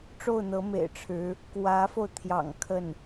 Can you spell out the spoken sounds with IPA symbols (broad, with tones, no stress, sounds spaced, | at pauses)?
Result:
ʈ͡ʂ o˥˩ ʊ̯ n̪ ɤ˧˥ m ḛ˨˩ ɪ̯ ʈ͡ʂʰ ɻ̩˧˥ | k w ä˧˥ f o˧ ʊ̯ t̪ʰ j ɑ̰˨˩ ŋ kʰ ə˥˩ n